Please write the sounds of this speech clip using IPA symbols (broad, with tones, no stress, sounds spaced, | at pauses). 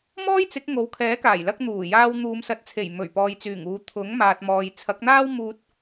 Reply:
m ɔː˥ j t͡s ɪ˨˥ k̚ ŋ o˨˥ w kʰ ɛː˨˥ k aː˨˩ j l ɐ˧ k̚ n̪ uː˨˩ j aː˧ w n̪ uː˨˧ m s ɐ˨ t̚ t͡sʰ e˨˩ j m ɵ˨˩ ɥ p ɔː˨ j t͡s yː˨˩ ŋ uː˨˧ t̪ʰ ʊ˨˥ ŋ m aː˨ t̚ m ɔː˨ j t͡sʰ ɐ˨˥ k̚ n̪ aː˥ w m uː˧ t̚